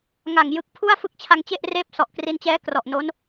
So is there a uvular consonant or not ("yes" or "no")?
no